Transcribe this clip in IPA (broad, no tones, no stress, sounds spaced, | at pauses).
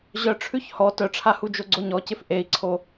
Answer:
ʑ œ ʈ͡ʂʰ ʉ ç h ɔ t œ ʈ͡ʂʰ a h u d͡ʒ o ɡ͡ǀ o ɲ ɔ c ɪ f ʔ e i̯ ǀʰ o